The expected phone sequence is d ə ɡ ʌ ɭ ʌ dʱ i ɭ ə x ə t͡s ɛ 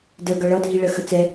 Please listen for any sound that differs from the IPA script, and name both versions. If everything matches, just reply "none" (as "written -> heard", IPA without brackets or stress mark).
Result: none